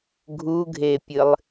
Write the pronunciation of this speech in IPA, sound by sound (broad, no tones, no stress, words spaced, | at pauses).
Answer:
ɡʱuɡʱepʲɨlˠ